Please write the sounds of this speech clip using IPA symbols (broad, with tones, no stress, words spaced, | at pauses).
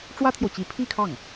ʈ͡ʂwä˥t̪ʰjo˨ʊ̯t͡ɕi˧˥ pʰi˥˧kʰɑ˥˩ŋ